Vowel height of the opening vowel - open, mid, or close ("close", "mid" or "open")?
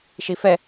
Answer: close